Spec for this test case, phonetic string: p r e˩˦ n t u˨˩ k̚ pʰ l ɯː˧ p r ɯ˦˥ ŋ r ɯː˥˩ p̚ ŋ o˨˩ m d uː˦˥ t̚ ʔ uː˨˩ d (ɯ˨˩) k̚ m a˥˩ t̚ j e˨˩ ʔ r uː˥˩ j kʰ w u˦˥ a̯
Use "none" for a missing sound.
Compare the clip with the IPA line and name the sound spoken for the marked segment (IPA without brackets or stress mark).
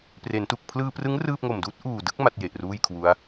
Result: ɯ˥˩